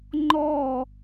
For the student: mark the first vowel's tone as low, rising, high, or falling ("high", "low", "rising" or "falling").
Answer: falling